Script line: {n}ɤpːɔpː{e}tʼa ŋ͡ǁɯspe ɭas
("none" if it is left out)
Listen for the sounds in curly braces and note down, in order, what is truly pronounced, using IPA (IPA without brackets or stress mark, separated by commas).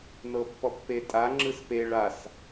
n, e